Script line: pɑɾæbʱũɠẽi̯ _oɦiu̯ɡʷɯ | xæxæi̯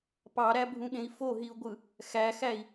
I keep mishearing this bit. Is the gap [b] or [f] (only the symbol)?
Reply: f